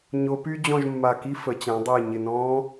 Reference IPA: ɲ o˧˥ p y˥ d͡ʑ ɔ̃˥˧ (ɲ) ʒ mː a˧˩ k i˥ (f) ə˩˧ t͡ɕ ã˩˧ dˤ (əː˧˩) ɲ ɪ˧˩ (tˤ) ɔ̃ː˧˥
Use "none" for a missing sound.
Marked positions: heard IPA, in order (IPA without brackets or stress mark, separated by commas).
none, f, əː˧˩, n